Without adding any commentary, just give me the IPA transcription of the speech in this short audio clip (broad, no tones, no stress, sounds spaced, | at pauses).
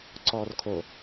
ǀ ɔː r kʰ o